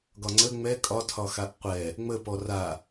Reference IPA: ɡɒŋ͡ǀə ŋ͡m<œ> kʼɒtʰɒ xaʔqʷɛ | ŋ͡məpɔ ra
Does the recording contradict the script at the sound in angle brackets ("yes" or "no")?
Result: yes